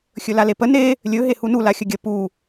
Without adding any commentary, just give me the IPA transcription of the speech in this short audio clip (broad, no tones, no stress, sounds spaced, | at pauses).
xʲ ɵ l a l e p ə n e | lʲ ɵ ɦ e h u n u l a xʲ ə ɡʲ ə p u